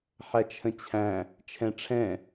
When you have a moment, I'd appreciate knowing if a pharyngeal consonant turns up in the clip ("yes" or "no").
yes